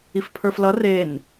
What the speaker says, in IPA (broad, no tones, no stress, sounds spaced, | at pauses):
i f pʰ ə˞ f l ʌ r e n